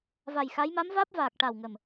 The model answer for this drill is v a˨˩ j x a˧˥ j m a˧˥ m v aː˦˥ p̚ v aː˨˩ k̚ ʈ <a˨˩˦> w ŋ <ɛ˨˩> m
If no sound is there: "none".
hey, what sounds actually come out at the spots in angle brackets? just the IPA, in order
a˨˩, ə˨˩

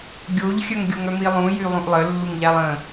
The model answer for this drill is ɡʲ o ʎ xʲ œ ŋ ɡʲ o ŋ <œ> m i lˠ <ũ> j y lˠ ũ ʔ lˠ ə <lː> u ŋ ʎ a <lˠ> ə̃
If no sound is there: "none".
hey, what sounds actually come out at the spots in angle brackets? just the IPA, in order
œ, ũ, lː, lˠ

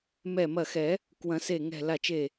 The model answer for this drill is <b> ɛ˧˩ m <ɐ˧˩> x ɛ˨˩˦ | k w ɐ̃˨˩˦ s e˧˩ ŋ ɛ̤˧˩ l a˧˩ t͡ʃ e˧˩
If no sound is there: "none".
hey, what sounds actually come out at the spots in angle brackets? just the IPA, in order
m, ɐ˧˩

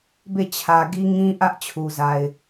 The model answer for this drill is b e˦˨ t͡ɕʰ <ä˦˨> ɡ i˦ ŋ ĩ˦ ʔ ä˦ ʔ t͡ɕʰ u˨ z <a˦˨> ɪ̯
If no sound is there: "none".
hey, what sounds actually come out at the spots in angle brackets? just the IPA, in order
ä˨, a˨

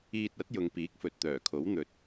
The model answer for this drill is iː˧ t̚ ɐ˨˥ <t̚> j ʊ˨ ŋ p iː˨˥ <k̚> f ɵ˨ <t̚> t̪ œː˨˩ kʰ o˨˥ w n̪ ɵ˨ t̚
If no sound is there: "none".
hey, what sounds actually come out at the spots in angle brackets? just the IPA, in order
t̚, k̚, t̚

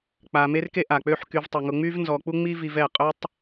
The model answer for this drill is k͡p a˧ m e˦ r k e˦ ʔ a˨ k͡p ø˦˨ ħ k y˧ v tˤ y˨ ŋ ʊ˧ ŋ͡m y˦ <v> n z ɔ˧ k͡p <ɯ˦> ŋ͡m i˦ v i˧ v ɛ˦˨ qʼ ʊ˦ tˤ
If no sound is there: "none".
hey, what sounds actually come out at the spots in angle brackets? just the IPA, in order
v, u˦

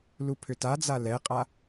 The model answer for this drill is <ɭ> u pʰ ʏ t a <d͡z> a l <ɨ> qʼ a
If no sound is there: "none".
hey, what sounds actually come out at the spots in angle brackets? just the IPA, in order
l, d͡z, ɛ

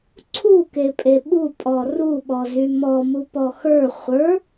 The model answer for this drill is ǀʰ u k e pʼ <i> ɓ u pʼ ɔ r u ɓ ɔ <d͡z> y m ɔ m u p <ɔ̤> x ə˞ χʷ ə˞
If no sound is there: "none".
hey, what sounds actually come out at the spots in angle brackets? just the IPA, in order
e, z, ɔ

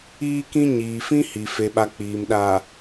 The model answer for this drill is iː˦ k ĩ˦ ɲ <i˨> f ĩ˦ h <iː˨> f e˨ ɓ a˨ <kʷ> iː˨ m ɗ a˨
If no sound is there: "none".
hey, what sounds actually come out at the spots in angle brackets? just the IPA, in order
iː˨, i˨, k͡p

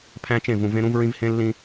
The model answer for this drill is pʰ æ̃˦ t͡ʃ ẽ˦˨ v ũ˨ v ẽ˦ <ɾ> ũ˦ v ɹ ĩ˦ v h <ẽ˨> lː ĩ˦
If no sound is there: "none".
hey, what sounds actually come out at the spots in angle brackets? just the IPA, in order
ɾ, ẽ˦

